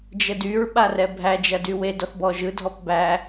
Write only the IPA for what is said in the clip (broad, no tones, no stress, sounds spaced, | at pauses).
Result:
d͡ʒ ə d y ɹ ɓ a r ɛ bʱ æ d͡ʒ ɐ d y w e d ɔ θ b ɔ ʒ ɯ dʱ ɔ p b æ